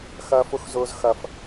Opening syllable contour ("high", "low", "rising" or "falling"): high